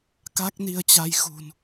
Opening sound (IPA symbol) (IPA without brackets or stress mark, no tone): k